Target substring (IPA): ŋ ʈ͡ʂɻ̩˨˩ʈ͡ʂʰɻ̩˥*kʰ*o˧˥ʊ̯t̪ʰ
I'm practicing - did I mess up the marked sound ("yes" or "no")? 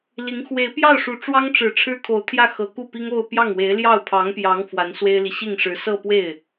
no